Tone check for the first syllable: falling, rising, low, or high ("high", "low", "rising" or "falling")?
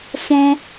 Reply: high